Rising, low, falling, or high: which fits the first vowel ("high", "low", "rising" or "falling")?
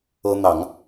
high